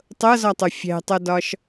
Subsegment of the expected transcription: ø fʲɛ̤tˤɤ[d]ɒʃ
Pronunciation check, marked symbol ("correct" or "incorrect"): correct